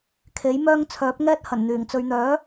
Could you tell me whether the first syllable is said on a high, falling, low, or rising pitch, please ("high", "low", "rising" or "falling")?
rising